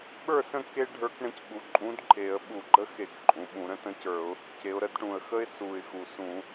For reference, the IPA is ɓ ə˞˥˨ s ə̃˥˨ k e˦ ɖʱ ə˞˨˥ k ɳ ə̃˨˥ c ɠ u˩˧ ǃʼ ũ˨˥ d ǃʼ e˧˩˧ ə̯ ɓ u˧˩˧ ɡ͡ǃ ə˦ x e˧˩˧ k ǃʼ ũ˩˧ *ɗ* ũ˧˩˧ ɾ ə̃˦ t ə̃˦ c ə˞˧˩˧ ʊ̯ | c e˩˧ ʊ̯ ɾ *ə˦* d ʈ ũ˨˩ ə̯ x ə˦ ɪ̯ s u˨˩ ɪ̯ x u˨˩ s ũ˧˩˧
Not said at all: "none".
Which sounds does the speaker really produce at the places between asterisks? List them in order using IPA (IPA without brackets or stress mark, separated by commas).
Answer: ɓ, ə˥˨